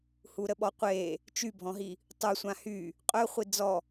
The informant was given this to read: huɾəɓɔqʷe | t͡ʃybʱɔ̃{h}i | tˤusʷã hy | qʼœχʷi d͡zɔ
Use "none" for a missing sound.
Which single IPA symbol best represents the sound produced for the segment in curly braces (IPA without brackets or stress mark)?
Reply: ɦ